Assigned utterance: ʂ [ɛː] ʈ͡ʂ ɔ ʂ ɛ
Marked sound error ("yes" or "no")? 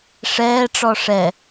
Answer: no